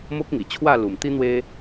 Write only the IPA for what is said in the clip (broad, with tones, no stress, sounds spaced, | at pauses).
m o˦ k̚ ŋ i˨˩ t͡ɕʰ w a˥˧ l u˨˩ m t̪ i˦ n̪ w e˦